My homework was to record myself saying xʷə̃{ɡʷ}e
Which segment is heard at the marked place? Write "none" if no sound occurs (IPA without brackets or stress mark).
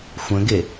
ɡ